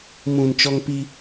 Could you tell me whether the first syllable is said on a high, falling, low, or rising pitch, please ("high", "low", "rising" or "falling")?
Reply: low